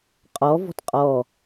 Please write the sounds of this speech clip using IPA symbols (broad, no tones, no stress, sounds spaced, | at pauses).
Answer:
qʼ ɔ v ɔ̤ t qʼ ɔ